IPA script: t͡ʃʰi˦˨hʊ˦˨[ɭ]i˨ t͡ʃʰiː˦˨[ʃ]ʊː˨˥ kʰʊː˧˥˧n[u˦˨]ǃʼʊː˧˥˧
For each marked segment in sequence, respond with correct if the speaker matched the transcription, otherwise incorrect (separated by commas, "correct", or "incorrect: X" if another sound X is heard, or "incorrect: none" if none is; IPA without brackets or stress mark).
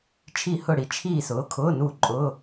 incorrect: ɽ, incorrect: s, correct